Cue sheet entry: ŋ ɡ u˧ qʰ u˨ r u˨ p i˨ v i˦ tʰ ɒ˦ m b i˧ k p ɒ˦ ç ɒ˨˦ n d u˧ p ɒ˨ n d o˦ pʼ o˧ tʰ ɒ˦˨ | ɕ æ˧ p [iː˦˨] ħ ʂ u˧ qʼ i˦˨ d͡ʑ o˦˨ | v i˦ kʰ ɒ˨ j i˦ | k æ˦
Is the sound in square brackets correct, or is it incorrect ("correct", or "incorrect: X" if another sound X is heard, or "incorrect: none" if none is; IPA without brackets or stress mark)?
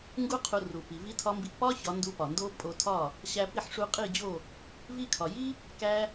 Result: incorrect: i˦˨